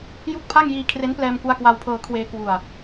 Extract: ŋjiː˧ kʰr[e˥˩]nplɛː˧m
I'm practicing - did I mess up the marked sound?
yes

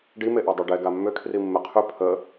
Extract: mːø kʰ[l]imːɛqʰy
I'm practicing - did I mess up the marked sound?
yes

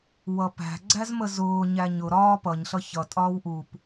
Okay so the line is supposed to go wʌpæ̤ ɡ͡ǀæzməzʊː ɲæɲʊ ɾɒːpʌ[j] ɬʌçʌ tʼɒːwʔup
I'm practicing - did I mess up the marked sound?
yes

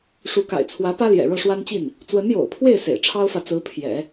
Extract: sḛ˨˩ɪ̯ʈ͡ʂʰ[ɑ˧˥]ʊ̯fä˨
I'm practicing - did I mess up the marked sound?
yes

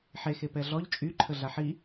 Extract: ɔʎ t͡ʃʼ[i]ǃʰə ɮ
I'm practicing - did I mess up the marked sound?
yes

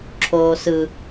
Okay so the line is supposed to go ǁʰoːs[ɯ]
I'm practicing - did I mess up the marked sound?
no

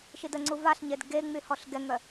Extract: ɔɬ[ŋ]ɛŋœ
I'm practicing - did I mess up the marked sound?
yes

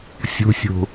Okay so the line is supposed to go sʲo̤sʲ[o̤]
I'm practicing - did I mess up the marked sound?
no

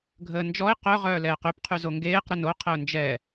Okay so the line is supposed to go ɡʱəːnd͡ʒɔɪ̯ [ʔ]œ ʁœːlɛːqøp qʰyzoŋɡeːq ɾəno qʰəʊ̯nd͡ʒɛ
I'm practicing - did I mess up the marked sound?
yes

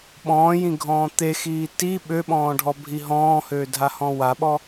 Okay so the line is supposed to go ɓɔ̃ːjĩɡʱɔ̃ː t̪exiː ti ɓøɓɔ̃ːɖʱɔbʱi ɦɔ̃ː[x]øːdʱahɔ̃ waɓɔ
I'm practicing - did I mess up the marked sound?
yes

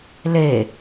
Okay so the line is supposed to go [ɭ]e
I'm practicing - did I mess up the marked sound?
yes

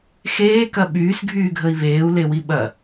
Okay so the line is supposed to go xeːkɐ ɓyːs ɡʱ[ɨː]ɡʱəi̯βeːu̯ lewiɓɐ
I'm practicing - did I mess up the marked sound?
yes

